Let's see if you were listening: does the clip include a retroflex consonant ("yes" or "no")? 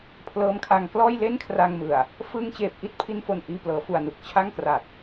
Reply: no